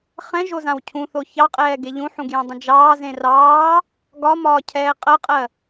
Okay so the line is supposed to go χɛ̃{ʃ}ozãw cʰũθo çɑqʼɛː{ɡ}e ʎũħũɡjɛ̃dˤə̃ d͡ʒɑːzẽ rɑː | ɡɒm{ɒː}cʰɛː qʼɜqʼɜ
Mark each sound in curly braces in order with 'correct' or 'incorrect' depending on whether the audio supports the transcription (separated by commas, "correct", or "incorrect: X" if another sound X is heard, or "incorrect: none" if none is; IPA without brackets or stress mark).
incorrect: ʒ, correct, correct